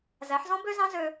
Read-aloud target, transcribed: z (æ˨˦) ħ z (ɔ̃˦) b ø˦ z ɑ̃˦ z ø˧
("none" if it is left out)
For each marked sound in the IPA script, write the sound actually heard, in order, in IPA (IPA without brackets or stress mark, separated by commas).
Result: æ˨˦, ɔ̃˦